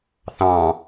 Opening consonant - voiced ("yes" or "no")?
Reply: no